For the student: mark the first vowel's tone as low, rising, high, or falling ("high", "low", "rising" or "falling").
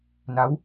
rising